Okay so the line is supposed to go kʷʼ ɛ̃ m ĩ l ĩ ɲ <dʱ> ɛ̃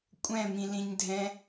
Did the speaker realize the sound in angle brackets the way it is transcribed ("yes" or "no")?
yes